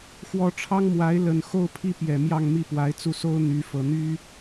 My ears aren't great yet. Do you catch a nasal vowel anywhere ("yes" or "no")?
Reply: no